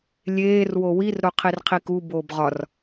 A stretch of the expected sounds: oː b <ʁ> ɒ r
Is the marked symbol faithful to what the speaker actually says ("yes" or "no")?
yes